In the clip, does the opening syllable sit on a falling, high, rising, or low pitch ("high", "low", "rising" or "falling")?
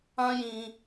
high